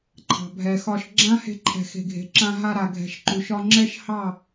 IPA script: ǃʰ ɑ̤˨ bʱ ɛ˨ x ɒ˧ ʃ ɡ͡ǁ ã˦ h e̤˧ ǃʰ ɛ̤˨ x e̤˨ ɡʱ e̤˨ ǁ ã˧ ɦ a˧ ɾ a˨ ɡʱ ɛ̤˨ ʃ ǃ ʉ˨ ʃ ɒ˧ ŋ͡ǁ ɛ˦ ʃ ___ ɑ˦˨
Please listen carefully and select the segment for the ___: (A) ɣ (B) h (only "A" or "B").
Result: B